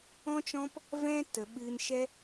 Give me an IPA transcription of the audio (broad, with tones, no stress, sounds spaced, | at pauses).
ɔ̃˦ t͡ʃ ɔ̃˦ p | v ɛ̃˦ t ə˨ ɓ ɨ˧ n ʃ ɛ˦